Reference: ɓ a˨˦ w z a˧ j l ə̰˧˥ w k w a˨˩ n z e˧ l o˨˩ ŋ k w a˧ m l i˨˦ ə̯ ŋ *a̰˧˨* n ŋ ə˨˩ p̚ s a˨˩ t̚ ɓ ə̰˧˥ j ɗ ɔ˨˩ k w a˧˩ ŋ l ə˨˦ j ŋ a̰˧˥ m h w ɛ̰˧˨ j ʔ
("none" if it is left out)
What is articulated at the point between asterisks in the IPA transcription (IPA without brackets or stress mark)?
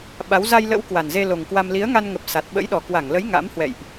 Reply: a˧